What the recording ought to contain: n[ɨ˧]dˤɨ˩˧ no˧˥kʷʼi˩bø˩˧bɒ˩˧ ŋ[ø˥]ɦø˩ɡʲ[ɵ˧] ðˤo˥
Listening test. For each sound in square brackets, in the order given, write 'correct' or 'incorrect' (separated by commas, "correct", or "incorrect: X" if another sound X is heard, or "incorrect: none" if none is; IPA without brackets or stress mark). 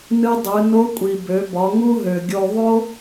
correct, incorrect: u˥, incorrect: o˧